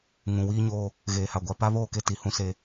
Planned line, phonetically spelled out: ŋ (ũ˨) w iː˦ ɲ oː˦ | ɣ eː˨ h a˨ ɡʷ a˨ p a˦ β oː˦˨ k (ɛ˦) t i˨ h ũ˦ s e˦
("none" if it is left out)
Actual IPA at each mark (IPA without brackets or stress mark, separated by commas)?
ũ˨, e˦